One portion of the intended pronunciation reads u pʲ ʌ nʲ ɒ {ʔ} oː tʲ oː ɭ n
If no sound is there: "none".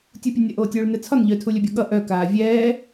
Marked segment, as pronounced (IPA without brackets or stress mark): ʔ